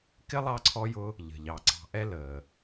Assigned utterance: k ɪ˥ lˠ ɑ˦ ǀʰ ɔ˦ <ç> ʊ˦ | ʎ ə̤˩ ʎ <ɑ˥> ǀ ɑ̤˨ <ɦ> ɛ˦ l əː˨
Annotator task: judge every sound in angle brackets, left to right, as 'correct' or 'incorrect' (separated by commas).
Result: incorrect, incorrect, incorrect